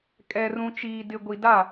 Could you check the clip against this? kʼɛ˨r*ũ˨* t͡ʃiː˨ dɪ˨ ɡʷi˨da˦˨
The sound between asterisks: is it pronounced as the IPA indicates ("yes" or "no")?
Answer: yes